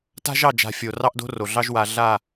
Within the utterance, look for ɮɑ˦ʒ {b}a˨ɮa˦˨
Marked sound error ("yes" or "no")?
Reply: yes